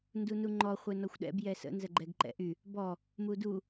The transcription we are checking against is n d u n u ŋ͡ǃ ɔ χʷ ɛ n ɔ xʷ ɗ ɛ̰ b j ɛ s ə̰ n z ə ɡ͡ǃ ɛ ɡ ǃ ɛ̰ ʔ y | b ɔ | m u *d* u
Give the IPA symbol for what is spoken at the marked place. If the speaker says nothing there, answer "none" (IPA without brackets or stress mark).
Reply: d